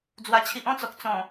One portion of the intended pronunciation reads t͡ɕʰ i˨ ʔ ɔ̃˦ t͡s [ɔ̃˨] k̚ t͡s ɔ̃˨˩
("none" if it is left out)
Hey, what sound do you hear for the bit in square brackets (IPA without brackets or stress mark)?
ɔ˨